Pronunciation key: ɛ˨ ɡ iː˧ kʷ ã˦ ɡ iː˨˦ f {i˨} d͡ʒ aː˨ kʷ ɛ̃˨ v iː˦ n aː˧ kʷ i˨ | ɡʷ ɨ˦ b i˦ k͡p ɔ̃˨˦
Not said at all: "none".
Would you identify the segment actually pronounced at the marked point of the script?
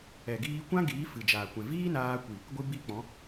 ɨ˨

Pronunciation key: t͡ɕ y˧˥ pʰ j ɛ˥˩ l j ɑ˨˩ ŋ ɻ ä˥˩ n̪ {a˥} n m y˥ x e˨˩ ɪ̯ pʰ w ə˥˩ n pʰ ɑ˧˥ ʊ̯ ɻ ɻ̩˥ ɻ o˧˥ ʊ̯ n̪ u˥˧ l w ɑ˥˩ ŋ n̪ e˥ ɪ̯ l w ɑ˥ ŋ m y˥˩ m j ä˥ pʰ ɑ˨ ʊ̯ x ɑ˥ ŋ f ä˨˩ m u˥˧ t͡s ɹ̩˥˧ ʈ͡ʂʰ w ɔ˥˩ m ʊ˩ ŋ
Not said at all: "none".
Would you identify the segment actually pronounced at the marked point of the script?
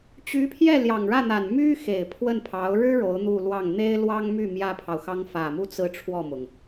a˨˩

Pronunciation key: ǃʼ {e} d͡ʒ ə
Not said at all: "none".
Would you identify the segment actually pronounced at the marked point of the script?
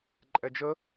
ɛ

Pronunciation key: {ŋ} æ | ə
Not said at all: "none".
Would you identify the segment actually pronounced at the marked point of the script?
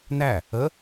n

